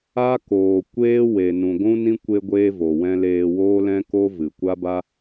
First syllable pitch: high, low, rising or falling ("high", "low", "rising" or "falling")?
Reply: high